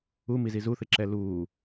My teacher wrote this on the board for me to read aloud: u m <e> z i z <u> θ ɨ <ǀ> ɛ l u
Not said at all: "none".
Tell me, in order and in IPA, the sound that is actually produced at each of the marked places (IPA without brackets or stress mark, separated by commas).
i, u, ǁ